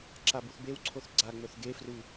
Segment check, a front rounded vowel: absent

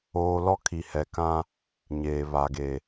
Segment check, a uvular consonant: absent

